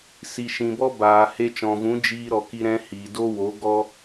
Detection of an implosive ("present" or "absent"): absent